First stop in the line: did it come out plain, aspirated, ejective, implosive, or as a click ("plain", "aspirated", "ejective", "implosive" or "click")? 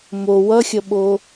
implosive